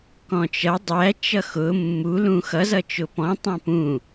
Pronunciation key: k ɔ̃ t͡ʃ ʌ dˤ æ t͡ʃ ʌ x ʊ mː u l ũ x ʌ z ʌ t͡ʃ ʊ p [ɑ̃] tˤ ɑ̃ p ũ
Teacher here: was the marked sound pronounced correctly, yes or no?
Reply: no